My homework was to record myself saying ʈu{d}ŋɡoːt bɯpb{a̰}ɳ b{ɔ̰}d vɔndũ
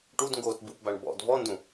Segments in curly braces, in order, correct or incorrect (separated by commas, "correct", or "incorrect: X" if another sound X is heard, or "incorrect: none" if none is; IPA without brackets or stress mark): correct, incorrect: a, correct